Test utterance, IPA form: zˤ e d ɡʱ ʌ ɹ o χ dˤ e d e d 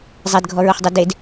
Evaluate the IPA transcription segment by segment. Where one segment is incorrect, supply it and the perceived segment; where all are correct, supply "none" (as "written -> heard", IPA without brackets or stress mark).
ʌ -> ɔ